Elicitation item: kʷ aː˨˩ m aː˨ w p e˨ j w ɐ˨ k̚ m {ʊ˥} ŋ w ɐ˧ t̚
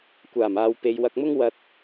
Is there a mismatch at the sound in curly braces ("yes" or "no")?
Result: no